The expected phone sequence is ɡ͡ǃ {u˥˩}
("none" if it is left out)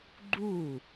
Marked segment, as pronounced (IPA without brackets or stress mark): u˥˩